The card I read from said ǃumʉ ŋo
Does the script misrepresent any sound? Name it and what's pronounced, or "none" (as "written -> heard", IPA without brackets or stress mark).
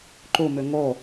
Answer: none